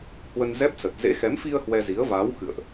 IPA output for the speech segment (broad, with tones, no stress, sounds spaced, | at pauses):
h w ə˧ n z ɛ˦˥ p̚ s ə˨˩ t̚ z ḛ˧˥ x ɛ˨˦ m f i˧ ə̯ h w ɛ˧ z i˨˦ ə̯ v aː˨˦ w x ɨ̰˧˨ ə̯ ʔ